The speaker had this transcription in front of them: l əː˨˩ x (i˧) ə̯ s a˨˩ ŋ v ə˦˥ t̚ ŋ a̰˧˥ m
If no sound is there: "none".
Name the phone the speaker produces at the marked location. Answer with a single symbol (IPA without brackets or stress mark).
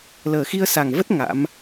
i˧